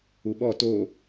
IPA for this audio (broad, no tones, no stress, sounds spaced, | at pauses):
u ɓ ɔ t o